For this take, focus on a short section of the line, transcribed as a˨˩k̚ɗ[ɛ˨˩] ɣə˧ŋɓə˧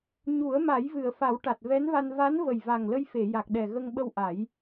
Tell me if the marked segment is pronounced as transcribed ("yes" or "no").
yes